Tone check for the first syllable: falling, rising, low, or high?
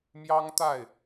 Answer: high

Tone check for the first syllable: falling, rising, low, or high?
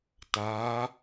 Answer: rising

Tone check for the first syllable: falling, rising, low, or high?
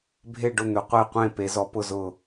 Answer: falling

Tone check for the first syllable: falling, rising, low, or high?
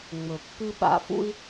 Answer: low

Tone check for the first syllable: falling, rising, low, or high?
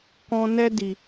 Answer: high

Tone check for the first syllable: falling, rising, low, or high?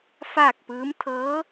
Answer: falling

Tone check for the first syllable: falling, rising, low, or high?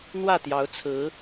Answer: falling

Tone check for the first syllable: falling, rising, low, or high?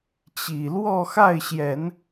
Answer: low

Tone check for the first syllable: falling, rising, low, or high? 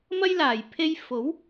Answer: high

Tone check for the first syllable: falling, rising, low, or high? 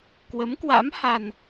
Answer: rising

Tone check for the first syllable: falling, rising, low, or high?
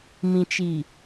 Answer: low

